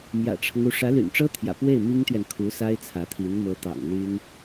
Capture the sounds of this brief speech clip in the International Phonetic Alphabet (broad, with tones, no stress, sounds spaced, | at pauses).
m j ä̰˨˩ ʈ͡ʂʰ ɤ˦ ŋ u˧˥ ʂ ä˧˥ l y̰˨˩ n ʈ͡ʂ ɤ˥ t̪ʰ j ä̰˨˩ p w e˥˩ ɪ̯ m i˥ ŋ t̪ ɥ ɛ˨ n kʰ u˧˥ s a˥ ɪ̯ t͡sʰ ä˧˥ t̪ʰ i˧˥ n m ɤ˧˥ t̪ ɑ̰˨˩ ŋ l y˥ n